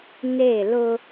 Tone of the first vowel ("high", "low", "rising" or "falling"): falling